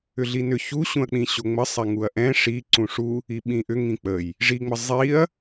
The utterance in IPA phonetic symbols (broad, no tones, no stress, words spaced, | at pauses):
ʏɮinʏ çuɕũɐ̯k͡pĩ ɕoŋ͡məsˤɛ ŋuɐ̯ʔɛ̃ ʂi ǀũʂu | iɓĩʔʏ ŋĩk͡pəj | ʐiŋ͡mə zˤiɐ̯